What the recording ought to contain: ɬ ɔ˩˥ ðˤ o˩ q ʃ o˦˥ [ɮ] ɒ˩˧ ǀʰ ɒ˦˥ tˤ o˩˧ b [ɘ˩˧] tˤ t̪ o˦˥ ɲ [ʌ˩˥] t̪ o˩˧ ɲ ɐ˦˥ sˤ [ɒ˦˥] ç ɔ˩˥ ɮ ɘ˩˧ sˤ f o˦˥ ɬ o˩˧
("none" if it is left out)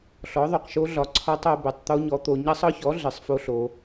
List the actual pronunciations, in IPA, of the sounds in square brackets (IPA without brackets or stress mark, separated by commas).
ɮ, ɘ˩˧, ɔ˩˥, ɒ˦˥